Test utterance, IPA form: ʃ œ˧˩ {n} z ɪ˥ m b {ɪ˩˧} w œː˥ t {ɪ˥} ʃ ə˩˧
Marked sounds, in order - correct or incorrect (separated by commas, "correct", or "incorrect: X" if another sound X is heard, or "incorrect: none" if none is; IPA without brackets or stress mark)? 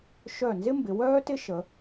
correct, correct, correct